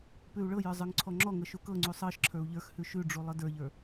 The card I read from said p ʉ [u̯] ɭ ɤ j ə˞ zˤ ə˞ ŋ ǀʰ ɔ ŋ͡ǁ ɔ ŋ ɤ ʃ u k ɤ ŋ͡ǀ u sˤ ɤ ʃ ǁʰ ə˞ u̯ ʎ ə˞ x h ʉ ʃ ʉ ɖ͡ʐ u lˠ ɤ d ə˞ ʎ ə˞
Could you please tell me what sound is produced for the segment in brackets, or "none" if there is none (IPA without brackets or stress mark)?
u̯